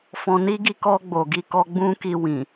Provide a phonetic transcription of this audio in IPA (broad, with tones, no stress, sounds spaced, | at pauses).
f ɔ̃˧ n i˦ ɡ i˦˨ k ɔ˧ ɡ͡b o˨ ɡ i˧ k ɔ˧ ɡ͡b ũ˦ k i˧ w ĩ˨